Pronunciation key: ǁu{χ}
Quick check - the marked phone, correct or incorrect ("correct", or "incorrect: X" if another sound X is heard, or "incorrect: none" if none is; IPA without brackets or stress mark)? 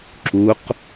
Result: incorrect: q